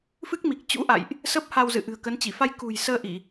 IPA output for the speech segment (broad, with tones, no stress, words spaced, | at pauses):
fɨ˦˥k̚mi˨˩k̚t͡ɕṵ˧˥ ʔa̰˧˨jʔ | sə˦˥p̚ha˧wzɨ̰˧˨ ʔɨ̤˨˩ə̯kə˨˦nt͡ɕi˧˩ fa˧j kṳ˨˩jsəː˧ʔi˧˩˨